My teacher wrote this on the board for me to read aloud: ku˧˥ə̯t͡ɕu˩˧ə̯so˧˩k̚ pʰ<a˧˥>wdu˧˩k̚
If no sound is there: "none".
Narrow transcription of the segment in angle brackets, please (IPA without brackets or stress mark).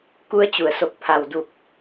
a˩